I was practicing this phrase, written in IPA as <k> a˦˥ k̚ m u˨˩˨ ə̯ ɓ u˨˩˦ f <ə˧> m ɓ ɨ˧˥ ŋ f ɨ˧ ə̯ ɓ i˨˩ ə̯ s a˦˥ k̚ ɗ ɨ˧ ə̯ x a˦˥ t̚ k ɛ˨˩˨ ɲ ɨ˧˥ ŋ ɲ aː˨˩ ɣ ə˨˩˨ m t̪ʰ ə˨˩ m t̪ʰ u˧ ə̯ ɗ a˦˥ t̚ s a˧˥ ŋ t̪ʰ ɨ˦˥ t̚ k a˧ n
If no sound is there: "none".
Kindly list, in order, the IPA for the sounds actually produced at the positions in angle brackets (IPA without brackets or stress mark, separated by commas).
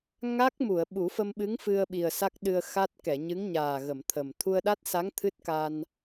ŋ, ə˧